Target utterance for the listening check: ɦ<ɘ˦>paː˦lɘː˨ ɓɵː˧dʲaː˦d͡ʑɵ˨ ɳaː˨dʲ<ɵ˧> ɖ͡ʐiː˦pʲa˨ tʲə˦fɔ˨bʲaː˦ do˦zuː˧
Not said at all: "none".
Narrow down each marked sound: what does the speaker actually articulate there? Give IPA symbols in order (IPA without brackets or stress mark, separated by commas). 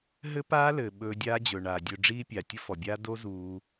ɘ˦, ɵ˧